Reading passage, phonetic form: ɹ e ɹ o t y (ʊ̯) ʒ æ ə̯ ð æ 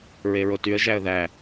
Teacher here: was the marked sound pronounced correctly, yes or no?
no